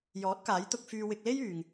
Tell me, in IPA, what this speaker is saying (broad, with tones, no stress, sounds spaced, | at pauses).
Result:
j ɔː˨˥ t̚ k aː˨˥ j t̪ ʊ˧ k̚ f yː˧ w ɪ˧ k̚ l e˥ j yː˨ ŋ